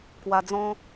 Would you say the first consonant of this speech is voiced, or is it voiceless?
voiceless